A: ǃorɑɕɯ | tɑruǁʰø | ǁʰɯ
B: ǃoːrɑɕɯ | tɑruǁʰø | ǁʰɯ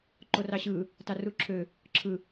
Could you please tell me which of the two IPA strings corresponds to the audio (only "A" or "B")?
A